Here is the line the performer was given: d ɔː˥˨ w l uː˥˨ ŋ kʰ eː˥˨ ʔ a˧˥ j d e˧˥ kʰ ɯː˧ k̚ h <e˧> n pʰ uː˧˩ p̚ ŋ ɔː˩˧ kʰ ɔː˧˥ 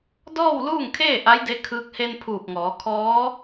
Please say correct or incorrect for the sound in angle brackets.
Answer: correct